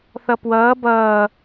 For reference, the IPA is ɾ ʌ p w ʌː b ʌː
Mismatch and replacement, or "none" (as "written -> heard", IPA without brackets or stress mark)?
ɾ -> θ